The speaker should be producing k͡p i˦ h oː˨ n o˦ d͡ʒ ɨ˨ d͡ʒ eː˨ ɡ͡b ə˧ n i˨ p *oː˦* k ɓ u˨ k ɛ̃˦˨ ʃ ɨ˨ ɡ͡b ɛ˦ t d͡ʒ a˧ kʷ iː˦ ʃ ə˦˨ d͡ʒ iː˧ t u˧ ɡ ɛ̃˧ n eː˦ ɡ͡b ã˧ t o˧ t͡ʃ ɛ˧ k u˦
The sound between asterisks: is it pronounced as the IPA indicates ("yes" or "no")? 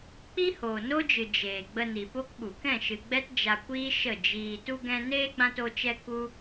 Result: no